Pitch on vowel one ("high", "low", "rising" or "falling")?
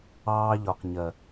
high